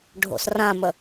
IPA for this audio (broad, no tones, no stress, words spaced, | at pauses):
ɖʱo̰srãmə